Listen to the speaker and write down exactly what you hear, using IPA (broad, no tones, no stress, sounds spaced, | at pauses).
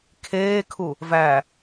kʰ eː kʰ u | v æ